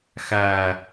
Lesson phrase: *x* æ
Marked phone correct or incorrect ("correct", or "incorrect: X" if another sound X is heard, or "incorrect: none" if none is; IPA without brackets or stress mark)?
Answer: correct